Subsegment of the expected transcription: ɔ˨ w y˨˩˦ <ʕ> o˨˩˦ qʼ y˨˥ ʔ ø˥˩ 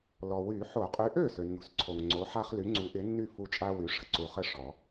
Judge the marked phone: incorrect: ħ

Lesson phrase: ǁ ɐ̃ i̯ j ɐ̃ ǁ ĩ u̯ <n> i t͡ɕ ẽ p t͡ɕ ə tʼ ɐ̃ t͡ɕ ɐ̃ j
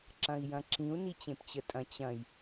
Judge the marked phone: correct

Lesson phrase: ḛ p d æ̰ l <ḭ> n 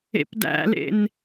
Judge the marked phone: incorrect: ḛ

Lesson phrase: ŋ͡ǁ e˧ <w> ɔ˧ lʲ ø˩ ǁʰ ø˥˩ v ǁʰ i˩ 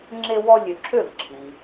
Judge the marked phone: correct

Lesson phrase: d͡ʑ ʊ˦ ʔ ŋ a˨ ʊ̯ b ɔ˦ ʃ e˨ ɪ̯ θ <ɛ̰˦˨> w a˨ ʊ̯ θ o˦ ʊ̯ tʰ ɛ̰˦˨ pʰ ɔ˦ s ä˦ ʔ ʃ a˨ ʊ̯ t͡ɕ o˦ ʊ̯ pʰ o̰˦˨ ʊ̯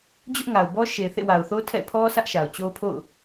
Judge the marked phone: incorrect: ḛ˦˨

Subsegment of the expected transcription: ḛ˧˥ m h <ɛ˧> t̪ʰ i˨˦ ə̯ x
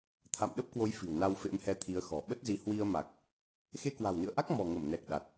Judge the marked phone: correct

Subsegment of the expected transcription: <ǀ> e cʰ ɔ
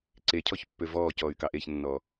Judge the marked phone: correct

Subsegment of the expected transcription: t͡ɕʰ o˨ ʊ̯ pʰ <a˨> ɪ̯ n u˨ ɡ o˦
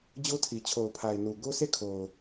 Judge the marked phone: correct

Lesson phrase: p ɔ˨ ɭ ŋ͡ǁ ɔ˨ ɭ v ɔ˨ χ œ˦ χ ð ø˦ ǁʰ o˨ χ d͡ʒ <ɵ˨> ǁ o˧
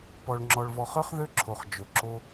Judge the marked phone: correct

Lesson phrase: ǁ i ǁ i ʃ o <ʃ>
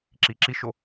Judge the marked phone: incorrect: none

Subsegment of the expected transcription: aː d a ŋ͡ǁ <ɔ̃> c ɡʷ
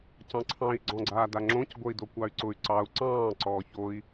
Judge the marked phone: incorrect: õ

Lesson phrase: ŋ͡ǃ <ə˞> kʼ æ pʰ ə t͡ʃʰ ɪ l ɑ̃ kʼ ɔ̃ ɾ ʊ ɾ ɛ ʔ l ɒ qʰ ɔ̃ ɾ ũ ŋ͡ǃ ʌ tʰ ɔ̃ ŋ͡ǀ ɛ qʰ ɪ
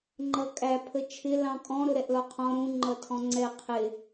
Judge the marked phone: incorrect: ʌ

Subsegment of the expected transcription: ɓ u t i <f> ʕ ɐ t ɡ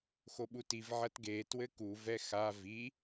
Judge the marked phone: incorrect: v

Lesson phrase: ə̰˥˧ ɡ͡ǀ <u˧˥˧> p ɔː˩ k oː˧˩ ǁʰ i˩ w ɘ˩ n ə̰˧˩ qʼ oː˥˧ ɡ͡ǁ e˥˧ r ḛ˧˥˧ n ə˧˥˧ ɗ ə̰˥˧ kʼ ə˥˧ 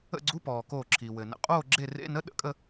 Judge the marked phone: correct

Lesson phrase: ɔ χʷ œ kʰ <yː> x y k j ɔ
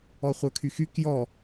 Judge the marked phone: incorrect: y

